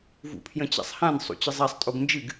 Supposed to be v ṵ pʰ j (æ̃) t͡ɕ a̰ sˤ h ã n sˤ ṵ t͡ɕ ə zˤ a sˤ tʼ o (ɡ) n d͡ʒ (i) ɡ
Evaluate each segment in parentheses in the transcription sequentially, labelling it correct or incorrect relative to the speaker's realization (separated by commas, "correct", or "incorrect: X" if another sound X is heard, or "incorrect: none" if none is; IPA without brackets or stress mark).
incorrect: ə̃, correct, incorrect: ɨ